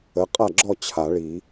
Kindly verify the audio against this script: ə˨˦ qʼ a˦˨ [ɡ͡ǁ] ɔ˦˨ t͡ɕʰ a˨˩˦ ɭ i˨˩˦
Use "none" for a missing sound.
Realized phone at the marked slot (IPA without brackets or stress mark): ɡ͡ǁ